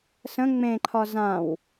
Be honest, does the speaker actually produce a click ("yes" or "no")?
yes